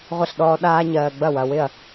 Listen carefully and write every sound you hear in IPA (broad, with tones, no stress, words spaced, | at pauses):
ʁʷə˥˩ɬɗɔː˦ ɗaː˦ɲɜː˨ ɡ͡bɐ˥˩wɐ˨wɪ˥˩ɐ̯